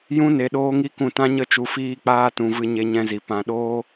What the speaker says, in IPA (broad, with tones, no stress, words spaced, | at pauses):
jũ˦ ne˧ɗoː˦ŋi˦kũ˦˨ tã˦ɲə˦t͡ʃu˧ fiː˧k͡paː˧tũ˨ vɨ˧ɲe˧ɲɛ̃˧zi˨ pã˧ɗoː˦